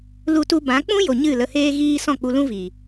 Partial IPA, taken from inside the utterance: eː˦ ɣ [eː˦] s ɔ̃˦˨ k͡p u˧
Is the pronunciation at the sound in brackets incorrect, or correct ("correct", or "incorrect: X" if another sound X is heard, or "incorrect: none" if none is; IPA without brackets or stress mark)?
incorrect: iː˦